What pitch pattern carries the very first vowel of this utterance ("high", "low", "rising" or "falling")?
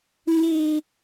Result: high